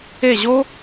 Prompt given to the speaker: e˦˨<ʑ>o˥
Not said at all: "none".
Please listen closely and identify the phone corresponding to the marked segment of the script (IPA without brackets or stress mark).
ʑ